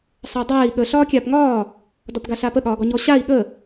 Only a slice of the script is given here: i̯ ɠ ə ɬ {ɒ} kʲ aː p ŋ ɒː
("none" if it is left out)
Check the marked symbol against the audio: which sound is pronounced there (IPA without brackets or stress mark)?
ɒː